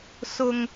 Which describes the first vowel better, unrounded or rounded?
rounded